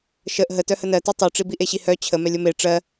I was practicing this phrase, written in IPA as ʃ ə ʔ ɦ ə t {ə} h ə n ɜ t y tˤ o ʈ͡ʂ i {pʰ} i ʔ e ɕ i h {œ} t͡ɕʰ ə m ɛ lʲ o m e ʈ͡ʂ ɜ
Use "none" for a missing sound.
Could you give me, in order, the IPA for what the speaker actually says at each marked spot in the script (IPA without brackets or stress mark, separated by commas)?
œ, b, œ